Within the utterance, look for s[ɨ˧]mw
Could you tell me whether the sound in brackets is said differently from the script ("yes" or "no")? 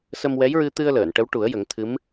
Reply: yes